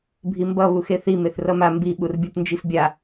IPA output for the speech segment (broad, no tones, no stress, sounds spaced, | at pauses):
bʱ i m b ʌ β u x e θ i m e θ r ʌ m a m b i ɓ u r bʲ o t n d͡ʒ i f bʲ a